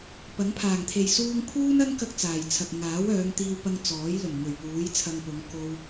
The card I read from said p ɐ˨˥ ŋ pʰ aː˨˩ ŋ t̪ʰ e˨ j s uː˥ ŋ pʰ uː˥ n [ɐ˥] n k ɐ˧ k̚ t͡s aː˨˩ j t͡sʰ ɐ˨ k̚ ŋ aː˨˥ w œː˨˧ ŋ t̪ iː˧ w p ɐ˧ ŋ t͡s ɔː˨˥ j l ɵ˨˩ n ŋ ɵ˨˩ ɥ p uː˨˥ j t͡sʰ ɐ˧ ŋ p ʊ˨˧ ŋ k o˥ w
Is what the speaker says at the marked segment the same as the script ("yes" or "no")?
yes